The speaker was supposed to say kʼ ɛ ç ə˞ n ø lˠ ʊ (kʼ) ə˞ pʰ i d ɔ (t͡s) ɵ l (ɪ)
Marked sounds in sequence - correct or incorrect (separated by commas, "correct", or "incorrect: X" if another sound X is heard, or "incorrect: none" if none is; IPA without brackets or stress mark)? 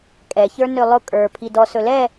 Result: correct, incorrect: s, incorrect: ɛ